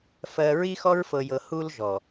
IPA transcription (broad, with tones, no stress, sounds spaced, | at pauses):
f ɜ˨ ɹ i˦ x ɔ˦ ɹ f ɤ˨ j ɤ˨ h u˦ l ʒ ɔ˨